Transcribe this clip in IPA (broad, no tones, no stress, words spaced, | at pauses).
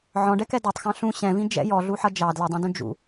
ʕɔ̃ɖɛkɛ dɔtˤxɑ̃ ɬũ ɕɛ̃vĩ d͡ʒɛ̰ jɔɮuħʌ d͡ʒɑ dlədˤũdũ d͡ʒṵ